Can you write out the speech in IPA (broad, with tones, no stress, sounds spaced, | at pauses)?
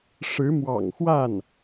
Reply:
ʂ ɻ̩˧˥ m w ɑ̰˨˩ ŋ x w a˥˩ n